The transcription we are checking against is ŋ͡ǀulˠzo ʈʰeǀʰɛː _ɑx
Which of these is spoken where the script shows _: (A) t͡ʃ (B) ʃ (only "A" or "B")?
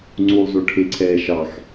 B